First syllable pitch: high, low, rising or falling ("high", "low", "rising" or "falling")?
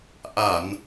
low